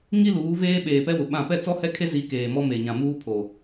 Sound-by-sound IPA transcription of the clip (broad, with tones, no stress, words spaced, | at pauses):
ŋi˦ luː˨˦veː˦ ɓeː˨pɛ˦wʊ˨ ɓã˦˨ pɛ˦t͡sɔ˦hɛ˦ kʰe˦zi˨˦ keː˨mɔ˦ me˨ɲã˨muː˦ pʰo˨